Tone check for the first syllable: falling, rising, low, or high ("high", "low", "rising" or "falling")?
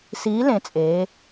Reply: rising